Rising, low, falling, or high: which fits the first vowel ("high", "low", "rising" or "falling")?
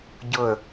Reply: falling